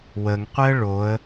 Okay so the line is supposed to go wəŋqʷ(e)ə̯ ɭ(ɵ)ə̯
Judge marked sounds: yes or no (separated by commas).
no, no